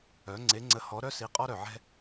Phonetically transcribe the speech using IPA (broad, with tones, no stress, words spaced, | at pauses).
œ˩˥ŋ͡ǀe˩˥ ŋ͡ǀə˩˥hɔ˩˥ ɾœ˦si˩˥ qʼɔ˦ɾœ˩ʕɛ̤˦